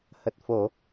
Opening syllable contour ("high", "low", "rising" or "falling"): low